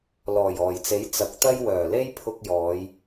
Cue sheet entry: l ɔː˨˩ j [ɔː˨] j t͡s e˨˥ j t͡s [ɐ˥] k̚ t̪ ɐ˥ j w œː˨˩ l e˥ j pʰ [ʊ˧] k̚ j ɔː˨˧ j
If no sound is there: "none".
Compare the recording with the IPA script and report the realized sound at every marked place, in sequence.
ɔː˨˩, ɐ˨˥, ʊ˧

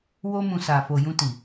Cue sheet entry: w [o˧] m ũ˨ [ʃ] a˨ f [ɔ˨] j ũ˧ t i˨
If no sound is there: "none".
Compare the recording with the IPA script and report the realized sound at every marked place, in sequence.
o˧, s, o˨

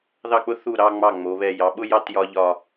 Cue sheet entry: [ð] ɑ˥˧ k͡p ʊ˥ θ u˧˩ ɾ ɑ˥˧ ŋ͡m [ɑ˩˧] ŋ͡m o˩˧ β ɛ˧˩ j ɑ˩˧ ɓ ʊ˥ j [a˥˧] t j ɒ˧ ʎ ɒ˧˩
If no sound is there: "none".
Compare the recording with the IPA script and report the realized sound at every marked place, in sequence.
ð, ɑ˧˩, ɑ˥˧

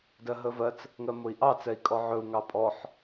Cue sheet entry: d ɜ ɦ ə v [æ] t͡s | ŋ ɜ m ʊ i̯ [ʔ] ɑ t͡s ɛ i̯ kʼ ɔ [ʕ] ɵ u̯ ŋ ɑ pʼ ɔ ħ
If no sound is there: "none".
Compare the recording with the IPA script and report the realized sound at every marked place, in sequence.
ɜ, ʔ, ʕ

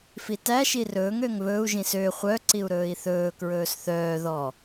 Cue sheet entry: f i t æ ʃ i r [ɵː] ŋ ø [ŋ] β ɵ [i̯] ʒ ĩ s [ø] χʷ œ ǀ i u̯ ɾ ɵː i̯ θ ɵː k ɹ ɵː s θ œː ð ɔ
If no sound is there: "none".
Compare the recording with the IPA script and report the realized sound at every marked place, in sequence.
ɵː, ŋ, u̯, ø

